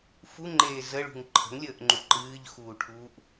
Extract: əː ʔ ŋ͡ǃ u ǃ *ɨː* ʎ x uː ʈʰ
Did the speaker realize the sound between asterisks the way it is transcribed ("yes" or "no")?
yes